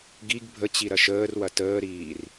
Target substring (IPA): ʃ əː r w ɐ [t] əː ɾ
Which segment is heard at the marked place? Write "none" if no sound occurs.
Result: t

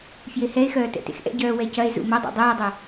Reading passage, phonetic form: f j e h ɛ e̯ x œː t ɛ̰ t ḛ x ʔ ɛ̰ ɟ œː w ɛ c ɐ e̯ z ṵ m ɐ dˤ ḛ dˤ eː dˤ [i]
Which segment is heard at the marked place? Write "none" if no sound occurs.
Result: e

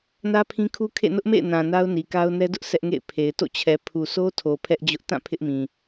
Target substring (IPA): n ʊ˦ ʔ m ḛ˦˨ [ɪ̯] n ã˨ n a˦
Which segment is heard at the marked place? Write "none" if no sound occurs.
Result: ɪ̯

